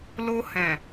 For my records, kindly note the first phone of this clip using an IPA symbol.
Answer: l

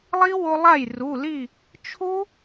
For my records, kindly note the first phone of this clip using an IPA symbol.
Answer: lˠ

